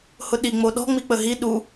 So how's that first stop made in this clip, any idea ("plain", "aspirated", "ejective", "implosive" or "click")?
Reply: implosive